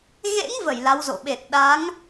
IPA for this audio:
ɣḛ˧˥ŋvə˧˩j la˨˦wzo̰˧˨ ɓe˨˩t̚ɗa˨˦ŋ

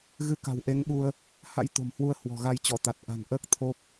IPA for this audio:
ɣɨ˧ ka̤˨˩wʔe˨˦ŋɓu˧ə̯ | ha̰˧˥j t̪o̤˨˩mhwu˧ə̯ hwɔ̤˨˩ɣa˧j t͡ɕɔ˧˩t̪a˨˩t̚ ʔa̤˨˩nʔəː˦˥k̚ t̪ʰo˦˥p̚

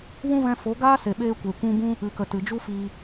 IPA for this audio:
wũ˦vɛ̃˧fo˨˦ ɡaː˦se˨ɓeː˧kʷe˨ kʷũ˧bũ˦ | ɨ˨kə˨ tɨ˨d͡ʒu˦ fiː˧

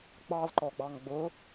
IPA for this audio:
ɡ͡bɑlǃɔɡ͡bɑŋ ɡ͡bʊ

